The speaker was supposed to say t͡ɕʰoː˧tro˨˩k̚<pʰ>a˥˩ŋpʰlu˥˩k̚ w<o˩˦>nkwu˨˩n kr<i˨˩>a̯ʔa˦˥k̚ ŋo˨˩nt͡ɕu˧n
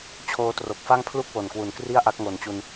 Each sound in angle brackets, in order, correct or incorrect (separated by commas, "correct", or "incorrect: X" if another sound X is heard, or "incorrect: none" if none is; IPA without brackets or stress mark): incorrect: f, incorrect: o˨˩, incorrect: i˥˩